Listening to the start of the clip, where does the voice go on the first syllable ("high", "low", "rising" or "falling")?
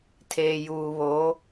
low